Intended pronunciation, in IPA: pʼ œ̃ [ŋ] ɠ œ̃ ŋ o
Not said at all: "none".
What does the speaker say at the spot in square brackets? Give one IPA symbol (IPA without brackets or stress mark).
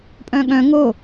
none